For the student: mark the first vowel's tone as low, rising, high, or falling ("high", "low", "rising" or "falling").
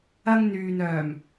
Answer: high